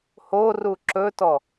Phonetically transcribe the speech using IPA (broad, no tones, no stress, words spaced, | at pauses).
horu ǁɵtɔ